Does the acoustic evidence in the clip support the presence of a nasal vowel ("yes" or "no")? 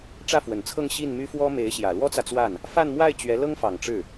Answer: no